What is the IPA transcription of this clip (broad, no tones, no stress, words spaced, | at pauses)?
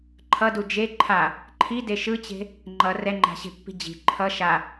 ǃʰʌdu d͡ʒe ǃʰa | ǃʰide ʃɯt͡ɕe̤ | ŋ͡ǃʌ rɛŋ͡ǃa̤ɕe̤pːi̤ d͡ʑi̤ ǃʰʌ ʃa